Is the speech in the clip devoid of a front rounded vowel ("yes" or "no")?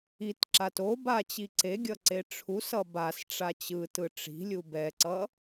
yes